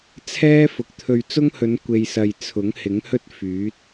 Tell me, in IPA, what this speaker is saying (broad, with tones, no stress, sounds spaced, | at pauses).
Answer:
t͡sʰ ɛː˥ f ʊ˨ k̚ t̪ʰ ɵ˧ ɥ t͡s ʊ˥ ŋ h ɵ˨˧ n kʷ e˨ j s ɐ˨ j t͡sʰ ʊ˨˥ ŋ h ɪ˨˥ ŋ h ɵ˥ t̚ f yː˨˥ t̚